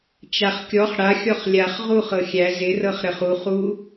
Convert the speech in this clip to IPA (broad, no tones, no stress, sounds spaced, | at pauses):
t͡ʃ a χ kʲ ɔ χ ɽ a xʲ ɔ χ lʲ a χ ʁ u χ ɤ xʲ æ z ɪ r ɤ χ ɾ ə χ u χ u